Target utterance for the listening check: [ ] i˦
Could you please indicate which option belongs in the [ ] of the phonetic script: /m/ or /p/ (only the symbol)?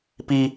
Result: p